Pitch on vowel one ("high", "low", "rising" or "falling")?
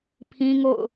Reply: high